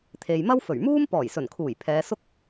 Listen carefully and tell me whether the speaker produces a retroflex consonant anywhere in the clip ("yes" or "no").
no